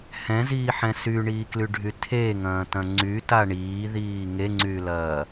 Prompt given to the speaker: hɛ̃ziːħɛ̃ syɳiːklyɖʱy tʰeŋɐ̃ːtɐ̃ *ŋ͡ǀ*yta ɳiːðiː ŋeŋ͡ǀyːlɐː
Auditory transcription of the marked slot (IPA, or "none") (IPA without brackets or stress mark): ŋ͡ǀ